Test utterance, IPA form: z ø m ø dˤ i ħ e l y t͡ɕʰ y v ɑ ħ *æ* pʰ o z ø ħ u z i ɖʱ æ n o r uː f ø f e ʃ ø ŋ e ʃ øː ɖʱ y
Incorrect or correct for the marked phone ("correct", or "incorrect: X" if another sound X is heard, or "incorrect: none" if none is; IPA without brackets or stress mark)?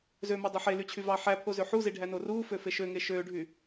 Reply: correct